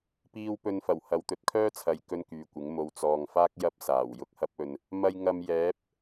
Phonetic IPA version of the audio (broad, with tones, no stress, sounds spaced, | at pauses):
p iː˥ w p ɵ˧ n f ɐ˨˩ w h ɐ˨˧ w t̪ ɵ˨˥ t̚ kʰ œː˥ t͡sʰ ɐ˨˧ j k ɵ˥ n k yː˨ kʷ ɪ˨˥ ŋ m o˨ w t͡s ɔː˨ ŋ f aː˥ k̚ j ɐ˥ p̚ s aː˨˩ w j ʊ˥ k̚ h ɐ˥ p̚ ɵ˧ n | m ɐ˧ j ŋ ɐ˧ m j ɛː˨˥ p̚